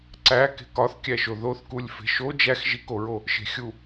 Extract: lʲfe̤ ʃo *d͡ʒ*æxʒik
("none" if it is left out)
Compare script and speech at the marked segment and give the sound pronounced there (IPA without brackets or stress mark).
d͡ʒ